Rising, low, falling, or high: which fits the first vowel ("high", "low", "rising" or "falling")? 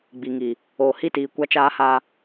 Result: low